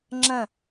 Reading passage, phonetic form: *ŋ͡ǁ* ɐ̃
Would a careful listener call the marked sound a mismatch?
no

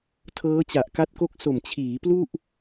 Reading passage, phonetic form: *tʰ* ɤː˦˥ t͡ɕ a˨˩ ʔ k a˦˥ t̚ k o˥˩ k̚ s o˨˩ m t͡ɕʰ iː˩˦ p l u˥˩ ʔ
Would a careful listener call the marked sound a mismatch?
no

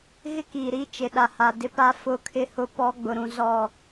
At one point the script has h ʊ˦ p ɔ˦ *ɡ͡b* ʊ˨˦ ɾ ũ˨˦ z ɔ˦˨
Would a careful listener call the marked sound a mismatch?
no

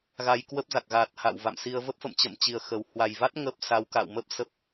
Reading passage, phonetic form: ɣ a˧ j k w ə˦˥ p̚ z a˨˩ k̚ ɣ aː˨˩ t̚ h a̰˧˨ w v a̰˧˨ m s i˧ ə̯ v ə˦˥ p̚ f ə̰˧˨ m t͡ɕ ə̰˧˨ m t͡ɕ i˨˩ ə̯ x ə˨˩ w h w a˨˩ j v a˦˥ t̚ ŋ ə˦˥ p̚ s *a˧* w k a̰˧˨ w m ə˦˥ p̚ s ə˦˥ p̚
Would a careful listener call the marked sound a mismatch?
yes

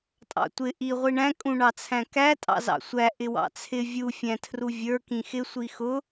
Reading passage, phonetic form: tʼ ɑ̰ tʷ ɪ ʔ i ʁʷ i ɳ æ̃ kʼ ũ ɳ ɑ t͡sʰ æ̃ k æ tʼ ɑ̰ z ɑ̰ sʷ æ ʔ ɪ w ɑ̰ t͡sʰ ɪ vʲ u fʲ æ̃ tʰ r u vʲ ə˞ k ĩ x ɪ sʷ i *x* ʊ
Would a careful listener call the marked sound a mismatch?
no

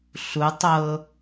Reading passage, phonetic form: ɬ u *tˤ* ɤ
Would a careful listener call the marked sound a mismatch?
no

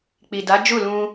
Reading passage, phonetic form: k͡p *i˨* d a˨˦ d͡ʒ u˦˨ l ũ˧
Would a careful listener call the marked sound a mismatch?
no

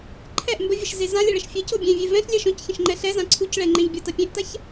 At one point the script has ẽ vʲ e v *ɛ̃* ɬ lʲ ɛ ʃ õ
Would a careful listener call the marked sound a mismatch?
no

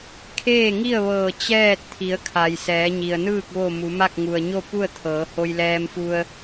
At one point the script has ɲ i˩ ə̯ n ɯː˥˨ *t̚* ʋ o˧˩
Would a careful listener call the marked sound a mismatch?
yes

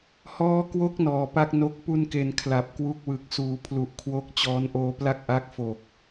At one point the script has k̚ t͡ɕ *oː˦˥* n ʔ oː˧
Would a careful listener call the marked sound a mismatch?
yes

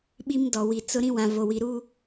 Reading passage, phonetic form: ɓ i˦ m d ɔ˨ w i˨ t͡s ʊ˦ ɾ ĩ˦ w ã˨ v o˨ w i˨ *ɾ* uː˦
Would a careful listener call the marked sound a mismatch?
no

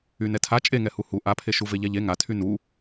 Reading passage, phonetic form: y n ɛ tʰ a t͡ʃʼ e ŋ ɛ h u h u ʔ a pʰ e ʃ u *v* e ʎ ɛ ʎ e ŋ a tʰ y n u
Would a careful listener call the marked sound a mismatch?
no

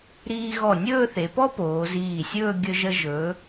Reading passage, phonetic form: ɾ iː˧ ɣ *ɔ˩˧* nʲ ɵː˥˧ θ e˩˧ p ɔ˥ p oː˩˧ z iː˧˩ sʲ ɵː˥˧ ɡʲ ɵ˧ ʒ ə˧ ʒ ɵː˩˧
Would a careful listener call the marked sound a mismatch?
yes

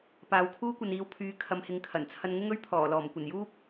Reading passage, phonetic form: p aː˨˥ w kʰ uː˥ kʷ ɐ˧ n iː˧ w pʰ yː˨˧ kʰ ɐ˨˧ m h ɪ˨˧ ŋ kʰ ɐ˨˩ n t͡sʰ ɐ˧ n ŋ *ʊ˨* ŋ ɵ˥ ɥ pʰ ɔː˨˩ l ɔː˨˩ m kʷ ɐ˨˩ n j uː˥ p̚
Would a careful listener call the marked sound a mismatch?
yes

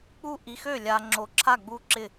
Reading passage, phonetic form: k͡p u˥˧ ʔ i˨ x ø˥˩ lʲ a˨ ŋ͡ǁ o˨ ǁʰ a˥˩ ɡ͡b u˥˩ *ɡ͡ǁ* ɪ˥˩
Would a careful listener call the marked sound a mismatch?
yes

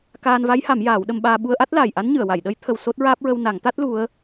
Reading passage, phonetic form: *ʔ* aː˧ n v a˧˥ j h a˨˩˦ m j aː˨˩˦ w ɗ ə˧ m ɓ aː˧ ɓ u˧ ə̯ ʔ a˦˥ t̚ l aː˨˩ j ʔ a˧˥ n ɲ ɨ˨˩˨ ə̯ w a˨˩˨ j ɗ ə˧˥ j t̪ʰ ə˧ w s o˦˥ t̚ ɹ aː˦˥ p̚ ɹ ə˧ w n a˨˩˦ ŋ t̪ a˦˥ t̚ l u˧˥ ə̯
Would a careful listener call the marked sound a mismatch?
yes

